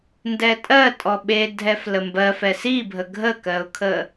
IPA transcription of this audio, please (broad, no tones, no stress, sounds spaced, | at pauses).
n d ɛ tʼ ɜ tʼ ɔ ɓ e dʱ ɛ f l ə m b ɜ f ɛ s i bʱ ə ɡʱ ə k ɜ ʊ̯ kʰ ə